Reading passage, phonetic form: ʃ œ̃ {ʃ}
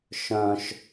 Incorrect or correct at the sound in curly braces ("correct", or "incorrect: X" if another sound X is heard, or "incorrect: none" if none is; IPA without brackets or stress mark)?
correct